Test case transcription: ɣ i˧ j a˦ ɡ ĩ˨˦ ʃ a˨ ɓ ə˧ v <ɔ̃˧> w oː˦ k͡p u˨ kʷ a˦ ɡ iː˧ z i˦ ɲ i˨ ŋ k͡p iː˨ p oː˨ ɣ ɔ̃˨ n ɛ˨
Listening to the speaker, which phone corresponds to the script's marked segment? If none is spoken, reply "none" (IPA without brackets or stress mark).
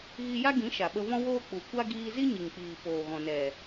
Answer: ɔ̃˦